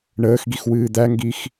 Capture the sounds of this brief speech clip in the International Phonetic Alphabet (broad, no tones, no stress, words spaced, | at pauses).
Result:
ɳəːxɡix wɨːd̪æŋɡix